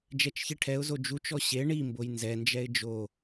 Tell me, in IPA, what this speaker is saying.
d͡ʒ ɛ t͡ʃ ç i ʈʰ ɛ ʊ̯ z o d͡ʒ u t͡ʃ ɔ ɕ e ɳ i m b o j n z ɛ n d͡ʒ ɛ ɪ̯ d͡ʒ o

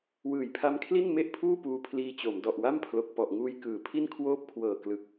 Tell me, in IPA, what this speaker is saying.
w ɯː˨˩ j pʰ a˦˥ m kʰ l i˥˩ n m e˥˩ ʔ pʰ uː˥˩ p uː˦˥ pʰ l iː˦˥ t͡ɕ o˩˦ m d ɔ˨˩ ʔ w a˥˩ m pʰ l o˨˩ k̚ p ɔ˨˩ ʔ ŋ uː˧ j k ɯː˩˦ pʰ i˥˩ n kʰ w oː˥˩ p̚ kʰ w ɤː˨˩ k l ɯ˨˩ k̚

